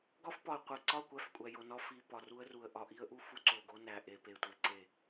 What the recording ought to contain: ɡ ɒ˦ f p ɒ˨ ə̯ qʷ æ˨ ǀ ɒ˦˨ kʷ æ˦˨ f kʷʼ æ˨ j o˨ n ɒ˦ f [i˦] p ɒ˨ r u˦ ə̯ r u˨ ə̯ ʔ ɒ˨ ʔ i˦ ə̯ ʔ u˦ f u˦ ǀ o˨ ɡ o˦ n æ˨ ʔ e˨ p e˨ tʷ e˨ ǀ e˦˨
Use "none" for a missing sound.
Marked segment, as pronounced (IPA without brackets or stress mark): i˨